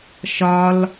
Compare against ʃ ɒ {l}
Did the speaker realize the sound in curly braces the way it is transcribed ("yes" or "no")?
yes